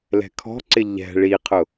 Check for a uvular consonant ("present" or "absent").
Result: present